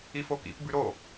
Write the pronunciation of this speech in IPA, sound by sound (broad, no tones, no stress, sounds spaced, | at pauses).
i f o k ḭ p b ʉ ɾ o